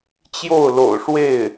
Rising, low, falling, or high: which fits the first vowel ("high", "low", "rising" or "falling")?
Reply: falling